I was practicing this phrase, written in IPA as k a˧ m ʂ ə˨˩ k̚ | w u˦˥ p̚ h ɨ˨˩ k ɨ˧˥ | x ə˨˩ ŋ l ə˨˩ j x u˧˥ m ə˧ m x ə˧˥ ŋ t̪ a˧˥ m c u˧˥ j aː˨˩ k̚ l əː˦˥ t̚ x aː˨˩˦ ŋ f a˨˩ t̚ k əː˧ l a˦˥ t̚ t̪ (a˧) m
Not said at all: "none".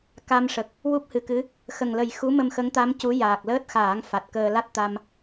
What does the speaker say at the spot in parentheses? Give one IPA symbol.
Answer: a˧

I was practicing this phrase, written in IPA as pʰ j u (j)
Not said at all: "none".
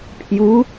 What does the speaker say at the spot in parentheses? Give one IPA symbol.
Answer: none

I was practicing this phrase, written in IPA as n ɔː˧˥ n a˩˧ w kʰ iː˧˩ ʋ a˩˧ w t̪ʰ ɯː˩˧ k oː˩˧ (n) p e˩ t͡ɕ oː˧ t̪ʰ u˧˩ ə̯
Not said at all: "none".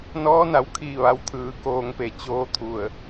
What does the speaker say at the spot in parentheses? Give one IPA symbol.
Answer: ŋ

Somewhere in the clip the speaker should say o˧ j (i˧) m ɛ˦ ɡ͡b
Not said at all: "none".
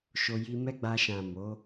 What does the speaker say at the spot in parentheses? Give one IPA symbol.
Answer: i˧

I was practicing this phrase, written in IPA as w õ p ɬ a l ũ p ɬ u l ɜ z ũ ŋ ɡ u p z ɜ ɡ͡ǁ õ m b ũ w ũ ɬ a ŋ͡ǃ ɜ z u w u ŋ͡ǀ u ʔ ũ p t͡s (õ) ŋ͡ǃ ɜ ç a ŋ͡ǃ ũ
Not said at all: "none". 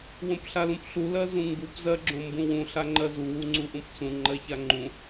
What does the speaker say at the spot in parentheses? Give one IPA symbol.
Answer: ũ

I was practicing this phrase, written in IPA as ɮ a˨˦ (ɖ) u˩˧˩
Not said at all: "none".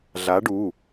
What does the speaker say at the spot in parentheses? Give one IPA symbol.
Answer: ɖ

